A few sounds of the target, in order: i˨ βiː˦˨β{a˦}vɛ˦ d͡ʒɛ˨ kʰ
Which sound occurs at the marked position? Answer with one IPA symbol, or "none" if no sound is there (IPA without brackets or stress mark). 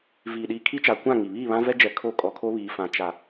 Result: ã˦